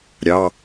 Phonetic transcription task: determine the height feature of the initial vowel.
low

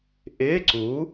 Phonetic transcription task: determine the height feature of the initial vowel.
high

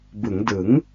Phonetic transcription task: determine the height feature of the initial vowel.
high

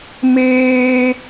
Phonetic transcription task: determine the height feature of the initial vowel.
mid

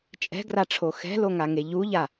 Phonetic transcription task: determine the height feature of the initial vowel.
mid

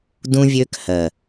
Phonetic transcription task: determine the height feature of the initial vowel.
high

